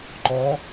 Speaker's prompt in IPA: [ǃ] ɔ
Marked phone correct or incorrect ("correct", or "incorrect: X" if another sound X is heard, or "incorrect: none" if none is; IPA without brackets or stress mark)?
correct